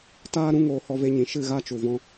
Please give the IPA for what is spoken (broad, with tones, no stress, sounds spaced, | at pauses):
t aː˦ ɾ ũ˦ ŋ oː˧ h ɔ˦ v e˦ ɲ ĩ˨ ʃ ɨ˦˨ ɣ a˦ t͡ʃ u˨ v ɔ̃˧